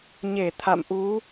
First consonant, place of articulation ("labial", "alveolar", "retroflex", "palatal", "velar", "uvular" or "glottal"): palatal